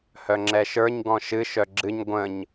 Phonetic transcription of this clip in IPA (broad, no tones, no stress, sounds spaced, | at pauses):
h œ ŋ͡ǁ ɛ ʃ ə˞ ɲ ɡ ɔ̃ ʃ ɨ ʃ œ ɡ͡ǁ ɨ ɲ ɡʷ ə̃ ɲ